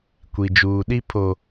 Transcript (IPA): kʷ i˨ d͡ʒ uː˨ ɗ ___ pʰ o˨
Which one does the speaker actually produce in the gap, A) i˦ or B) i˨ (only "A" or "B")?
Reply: A